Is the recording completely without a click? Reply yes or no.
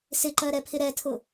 no